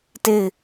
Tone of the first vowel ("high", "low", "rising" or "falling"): falling